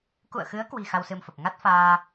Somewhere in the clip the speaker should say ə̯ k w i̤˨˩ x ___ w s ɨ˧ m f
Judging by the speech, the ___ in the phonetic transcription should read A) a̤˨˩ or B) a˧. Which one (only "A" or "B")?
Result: B